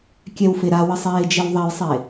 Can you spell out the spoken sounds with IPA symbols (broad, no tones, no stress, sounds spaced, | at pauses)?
kʲ ɛ w f e ɾ a w ə sˤ eː d͡ʒ e w ðˤ ɛ j sˤ e